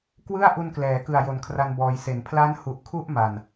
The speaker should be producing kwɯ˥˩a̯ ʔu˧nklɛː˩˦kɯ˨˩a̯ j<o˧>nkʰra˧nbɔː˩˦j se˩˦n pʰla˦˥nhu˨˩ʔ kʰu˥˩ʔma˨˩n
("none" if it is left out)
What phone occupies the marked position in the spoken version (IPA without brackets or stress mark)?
o˨˩